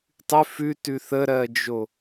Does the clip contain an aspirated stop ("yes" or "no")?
no